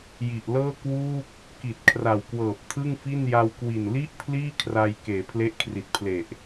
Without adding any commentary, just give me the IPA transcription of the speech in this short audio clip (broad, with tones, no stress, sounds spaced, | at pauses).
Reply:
j i˨˩ ʔ l ɤː˥˩ k w uː˥˩ k̚ | k i˨˩ t̚ kʰ r a˨˩ w k w ɤː˨˩ p̚ tʰ ɯ˥˩ ŋ f i˥˩ n j a˧ w k w i˨˩ n l i˥˩ ʔ pʰ l iː˥˩ kʰ r a˧ j k eː˩˦ pʰ l e˦˥ ʔ kʰ r i˨˩ t̚ pʰ l e˨˩ ʔ